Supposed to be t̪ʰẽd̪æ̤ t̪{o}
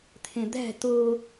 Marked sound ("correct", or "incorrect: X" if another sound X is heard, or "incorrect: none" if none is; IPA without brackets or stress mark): correct